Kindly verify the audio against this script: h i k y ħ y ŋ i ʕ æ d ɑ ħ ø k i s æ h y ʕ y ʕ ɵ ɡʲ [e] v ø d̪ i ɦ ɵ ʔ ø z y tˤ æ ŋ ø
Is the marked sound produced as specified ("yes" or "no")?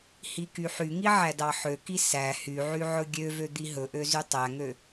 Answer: no